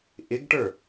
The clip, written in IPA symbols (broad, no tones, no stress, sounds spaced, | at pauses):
ʔ ɪ ɡ ʈ ə˞